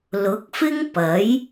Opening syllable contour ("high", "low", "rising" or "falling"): rising